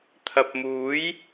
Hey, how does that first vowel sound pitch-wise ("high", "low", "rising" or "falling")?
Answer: low